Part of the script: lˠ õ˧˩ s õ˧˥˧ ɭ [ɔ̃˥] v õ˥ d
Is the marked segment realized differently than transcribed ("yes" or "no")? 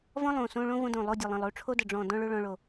yes